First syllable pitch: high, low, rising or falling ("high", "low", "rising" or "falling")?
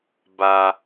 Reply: low